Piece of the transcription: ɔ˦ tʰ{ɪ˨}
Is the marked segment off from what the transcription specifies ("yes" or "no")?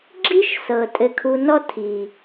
yes